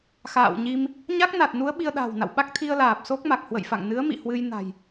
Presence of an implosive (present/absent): present